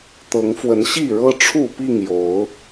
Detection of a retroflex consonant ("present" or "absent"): present